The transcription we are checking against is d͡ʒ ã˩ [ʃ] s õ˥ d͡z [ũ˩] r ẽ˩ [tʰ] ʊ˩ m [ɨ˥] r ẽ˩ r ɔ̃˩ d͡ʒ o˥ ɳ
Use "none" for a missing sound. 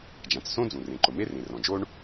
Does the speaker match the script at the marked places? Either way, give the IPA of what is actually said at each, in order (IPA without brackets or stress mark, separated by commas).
t͡s, ũ˩, ǃ, e˥